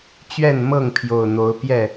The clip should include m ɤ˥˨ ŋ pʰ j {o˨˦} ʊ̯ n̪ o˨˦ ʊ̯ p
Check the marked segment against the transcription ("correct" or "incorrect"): incorrect